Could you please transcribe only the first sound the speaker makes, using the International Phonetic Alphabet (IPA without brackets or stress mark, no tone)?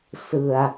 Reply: s